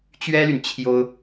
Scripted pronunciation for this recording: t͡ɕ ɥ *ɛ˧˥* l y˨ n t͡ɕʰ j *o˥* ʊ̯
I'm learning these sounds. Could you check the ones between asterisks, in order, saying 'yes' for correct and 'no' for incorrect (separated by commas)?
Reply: no, yes